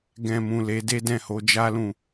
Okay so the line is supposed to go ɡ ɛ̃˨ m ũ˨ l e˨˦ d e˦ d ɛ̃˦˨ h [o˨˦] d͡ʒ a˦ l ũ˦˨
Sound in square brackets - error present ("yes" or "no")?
no